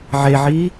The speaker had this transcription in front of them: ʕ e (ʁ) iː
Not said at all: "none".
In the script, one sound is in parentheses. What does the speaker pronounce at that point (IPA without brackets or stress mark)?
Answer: ʕ